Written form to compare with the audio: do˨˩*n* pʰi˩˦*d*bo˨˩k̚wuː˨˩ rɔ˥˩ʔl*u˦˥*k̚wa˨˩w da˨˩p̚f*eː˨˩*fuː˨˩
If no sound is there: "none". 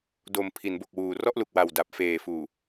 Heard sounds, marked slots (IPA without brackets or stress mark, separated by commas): m, n, u˨˩, eː˨˩